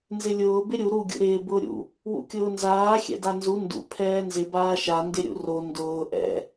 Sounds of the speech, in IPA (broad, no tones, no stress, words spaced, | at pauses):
nzɪlʲʊː bɪɾʲu ɾu ɡʲṵɾɪː bʊːɾʲṵ | wṵkʲʊːnzaː xʲɛ̰danzu ndṵ pʰɛːnzɪ baːʃa ndɪɾʲṵro ndʊː ʔɛ̰